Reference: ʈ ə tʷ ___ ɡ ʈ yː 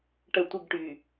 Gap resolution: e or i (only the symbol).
i